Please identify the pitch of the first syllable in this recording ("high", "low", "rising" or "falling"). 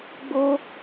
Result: high